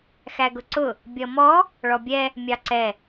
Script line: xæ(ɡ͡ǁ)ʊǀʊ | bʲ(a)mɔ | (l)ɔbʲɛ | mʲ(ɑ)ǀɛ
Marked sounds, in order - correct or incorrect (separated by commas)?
incorrect, incorrect, incorrect, correct